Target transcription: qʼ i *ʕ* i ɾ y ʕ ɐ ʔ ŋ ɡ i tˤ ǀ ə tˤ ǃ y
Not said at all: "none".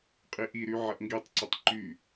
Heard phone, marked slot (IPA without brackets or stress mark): ʔ